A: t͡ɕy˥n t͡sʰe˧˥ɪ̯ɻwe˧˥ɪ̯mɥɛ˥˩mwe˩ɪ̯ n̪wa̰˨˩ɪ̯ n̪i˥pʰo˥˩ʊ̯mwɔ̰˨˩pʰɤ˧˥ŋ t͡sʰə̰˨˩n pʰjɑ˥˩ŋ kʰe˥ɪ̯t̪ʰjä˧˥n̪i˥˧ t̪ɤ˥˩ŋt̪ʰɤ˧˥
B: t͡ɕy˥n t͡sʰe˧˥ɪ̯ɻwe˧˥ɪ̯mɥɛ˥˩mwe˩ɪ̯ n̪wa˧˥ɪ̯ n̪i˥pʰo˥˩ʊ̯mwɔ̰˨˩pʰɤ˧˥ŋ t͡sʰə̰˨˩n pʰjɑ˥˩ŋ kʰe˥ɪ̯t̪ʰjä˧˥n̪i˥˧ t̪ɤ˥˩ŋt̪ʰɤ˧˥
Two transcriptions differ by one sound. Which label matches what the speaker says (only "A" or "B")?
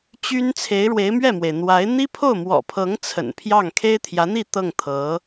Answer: B